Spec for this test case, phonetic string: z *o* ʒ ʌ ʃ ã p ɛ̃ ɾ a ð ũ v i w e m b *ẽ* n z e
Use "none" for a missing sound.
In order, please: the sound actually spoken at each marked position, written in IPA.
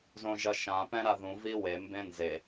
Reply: õ, ẽ

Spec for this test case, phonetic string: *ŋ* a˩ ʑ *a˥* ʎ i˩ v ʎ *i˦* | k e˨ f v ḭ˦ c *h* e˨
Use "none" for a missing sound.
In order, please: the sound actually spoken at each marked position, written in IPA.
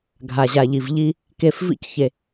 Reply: ɡʱ, a˩, i˨, ç

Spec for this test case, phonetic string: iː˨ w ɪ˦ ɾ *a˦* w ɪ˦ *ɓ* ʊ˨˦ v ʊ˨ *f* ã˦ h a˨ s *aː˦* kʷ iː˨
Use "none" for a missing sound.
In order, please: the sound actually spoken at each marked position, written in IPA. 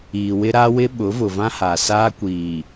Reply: a˦, ɓ, v, aː˦

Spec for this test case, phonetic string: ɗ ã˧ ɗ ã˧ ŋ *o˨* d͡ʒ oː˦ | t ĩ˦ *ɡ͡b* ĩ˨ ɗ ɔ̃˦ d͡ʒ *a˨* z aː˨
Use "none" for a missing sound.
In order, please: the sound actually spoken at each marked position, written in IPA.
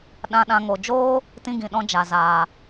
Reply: o˨, ɡ, a˨

